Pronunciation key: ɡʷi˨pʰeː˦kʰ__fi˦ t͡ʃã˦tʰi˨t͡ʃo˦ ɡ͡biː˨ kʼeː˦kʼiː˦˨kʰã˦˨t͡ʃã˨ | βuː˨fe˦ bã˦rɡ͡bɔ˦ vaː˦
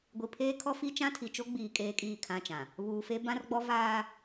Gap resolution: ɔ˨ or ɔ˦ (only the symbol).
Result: ɔ˦